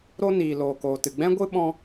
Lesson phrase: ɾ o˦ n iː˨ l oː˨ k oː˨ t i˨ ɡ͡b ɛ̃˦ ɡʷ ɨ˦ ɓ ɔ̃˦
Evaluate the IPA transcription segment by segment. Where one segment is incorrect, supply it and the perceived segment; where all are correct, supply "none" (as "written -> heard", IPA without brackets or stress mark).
i˨ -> ɨ˨